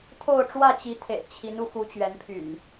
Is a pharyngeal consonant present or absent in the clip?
absent